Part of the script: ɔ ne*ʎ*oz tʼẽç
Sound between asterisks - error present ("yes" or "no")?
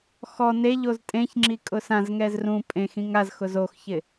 no